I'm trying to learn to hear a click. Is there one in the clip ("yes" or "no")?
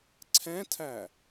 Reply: yes